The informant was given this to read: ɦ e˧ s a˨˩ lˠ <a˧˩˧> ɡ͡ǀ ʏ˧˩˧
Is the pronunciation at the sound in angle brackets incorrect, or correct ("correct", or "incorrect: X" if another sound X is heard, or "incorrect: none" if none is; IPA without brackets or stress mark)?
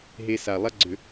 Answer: incorrect: a˥